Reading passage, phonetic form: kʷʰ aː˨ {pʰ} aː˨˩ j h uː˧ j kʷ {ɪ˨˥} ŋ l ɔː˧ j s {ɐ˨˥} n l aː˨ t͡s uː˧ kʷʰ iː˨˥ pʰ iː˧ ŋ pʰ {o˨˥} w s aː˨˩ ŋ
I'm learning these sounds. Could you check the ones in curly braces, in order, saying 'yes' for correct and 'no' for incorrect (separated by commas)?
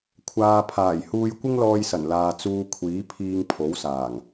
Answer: yes, no, no, yes